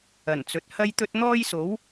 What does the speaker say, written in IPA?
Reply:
ɐ˨˩nt͡sɵ˨t̚ hɐ˥jt̪ɵ˥t̚ n̪ɔː˥jso˨˥w

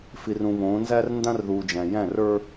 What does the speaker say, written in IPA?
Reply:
fi˨rũ˨βõː˨˦nzæ˦r ndã˦rðuː˨d͡ʒæ̃˨jæ̃˦˨r ə˞˦

